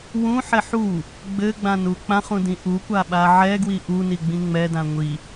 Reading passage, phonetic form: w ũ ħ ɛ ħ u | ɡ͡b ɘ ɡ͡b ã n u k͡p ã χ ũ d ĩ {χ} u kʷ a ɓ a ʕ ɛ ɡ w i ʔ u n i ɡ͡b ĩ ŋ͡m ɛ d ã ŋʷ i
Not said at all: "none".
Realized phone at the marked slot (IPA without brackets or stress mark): ʔ